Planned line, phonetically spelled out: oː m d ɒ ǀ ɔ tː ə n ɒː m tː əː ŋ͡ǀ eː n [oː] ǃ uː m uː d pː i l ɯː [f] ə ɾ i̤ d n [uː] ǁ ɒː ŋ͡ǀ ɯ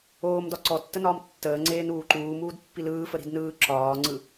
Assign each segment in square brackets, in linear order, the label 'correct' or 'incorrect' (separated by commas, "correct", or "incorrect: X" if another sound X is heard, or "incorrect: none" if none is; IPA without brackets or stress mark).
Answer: incorrect: uː, correct, incorrect: ɯː